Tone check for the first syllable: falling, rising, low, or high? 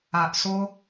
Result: low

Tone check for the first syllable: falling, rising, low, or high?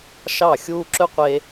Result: falling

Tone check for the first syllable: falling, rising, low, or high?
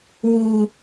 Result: high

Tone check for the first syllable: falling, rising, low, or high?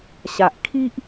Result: low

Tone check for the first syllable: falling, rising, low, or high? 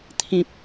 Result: low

